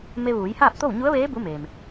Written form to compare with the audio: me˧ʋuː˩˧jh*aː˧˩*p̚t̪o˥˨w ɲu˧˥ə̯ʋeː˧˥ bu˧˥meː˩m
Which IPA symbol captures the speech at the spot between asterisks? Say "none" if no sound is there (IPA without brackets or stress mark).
aː˥˨